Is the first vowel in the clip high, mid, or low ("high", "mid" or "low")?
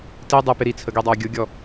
high